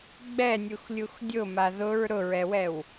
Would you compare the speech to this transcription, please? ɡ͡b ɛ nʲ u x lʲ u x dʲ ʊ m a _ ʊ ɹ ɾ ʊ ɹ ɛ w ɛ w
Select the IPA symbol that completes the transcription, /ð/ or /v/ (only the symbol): ð